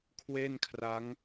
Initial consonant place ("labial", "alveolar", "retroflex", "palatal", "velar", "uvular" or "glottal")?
velar